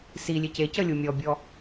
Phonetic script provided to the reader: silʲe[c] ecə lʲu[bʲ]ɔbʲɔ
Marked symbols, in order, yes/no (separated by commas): yes, no